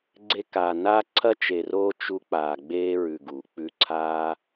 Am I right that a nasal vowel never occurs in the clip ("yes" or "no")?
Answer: yes